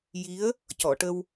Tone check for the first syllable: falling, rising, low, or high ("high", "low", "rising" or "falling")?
rising